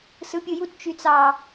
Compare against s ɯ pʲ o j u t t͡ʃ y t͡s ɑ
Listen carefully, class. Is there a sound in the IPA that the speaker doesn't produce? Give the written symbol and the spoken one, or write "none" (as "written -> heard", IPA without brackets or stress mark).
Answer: none